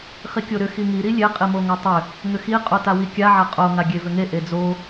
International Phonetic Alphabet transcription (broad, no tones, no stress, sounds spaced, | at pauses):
χ i kʲ o ɾ ʏ x i ŋ i ɾ i lʲ e qʼ i m o ŋ a tˤ ʏ | ŋ ʏ x i qʼ o t a w i kʲ a ʕ a qʼ o ŋ a ɡʲ e v ʏ ŋ e ʔ e d͡z o